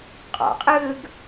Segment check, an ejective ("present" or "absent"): present